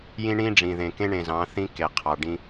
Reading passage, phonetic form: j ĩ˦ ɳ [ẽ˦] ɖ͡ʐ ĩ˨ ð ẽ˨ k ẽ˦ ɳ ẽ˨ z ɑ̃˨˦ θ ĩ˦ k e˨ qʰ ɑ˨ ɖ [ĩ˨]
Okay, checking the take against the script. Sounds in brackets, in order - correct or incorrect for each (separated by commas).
incorrect, incorrect